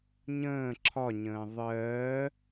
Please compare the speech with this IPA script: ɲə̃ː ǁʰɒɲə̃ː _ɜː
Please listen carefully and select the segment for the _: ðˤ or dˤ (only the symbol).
ðˤ